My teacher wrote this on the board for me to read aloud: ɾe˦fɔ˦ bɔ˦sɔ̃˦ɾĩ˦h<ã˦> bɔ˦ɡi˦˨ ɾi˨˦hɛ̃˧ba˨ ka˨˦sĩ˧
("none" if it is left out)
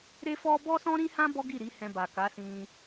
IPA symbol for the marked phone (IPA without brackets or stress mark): ã˦